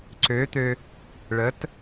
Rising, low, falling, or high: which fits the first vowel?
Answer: rising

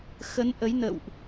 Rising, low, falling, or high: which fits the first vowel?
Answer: rising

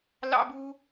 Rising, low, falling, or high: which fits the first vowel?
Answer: high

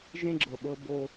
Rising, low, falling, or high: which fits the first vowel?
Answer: high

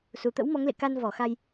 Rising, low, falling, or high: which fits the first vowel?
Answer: low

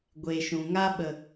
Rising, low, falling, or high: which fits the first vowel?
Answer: low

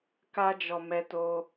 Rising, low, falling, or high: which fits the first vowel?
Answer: high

